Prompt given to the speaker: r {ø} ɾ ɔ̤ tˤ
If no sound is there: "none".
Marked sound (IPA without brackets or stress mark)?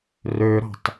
ø